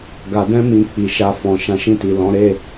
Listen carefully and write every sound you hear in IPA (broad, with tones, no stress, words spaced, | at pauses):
ɡa˨dɛ̃˧mĩ˨ k͡pi˨ʃa˧fɔ̃˨ ʃã˨˦ʃĩ˦˨ti˨lɔ̃˨˦ ɾe˦˨